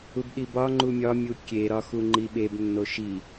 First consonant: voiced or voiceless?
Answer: voiced